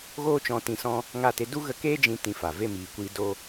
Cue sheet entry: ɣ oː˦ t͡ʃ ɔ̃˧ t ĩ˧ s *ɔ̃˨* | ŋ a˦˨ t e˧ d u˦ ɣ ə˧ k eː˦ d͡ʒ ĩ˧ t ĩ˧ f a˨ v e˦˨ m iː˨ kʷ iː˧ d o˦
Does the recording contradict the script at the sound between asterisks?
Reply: yes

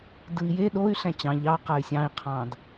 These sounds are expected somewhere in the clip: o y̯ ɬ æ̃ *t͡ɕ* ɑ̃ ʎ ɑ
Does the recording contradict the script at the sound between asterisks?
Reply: no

